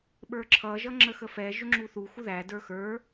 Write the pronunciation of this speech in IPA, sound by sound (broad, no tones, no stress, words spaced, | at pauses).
ɓə˞ǁʰʌ ʒʌŋ͡ǁəxəfɛ ʒʊŋ͡ǁuθu xuðæ də˞xə˞